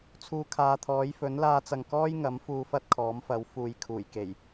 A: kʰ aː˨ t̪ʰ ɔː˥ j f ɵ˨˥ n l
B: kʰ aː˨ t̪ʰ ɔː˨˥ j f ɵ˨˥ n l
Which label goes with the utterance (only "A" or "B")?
B